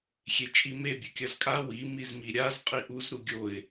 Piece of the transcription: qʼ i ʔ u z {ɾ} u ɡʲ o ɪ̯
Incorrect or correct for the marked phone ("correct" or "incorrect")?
correct